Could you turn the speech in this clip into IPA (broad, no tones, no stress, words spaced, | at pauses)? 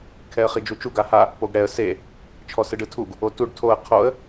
kʰɛə̯χid͡ʒut͡ʃu ɡaha | poɡɽɛə̯ se | t͡ʃʰɔsɯɖɯtʰuɡ | otuɖ tʰoə̯ qʰoə̯